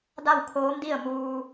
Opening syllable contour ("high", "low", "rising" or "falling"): falling